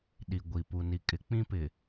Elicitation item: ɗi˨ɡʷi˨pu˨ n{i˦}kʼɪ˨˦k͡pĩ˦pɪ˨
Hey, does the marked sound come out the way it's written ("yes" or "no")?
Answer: no